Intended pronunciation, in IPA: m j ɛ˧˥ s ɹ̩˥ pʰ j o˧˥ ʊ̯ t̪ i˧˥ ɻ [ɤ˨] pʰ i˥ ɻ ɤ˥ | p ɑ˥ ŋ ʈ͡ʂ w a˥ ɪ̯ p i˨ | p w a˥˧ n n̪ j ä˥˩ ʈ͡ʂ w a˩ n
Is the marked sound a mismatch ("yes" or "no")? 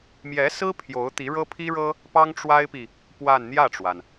yes